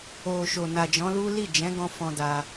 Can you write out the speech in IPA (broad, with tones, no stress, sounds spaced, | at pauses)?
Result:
o˨ ʃ o˨ n a˨ d͡ʒ ɔ̃˨˦ l u˦ l i˦˨ d͡ʒ ɛ̃˨˦ ɡ ɔ̃˧ f ɔ̃˧ d a˧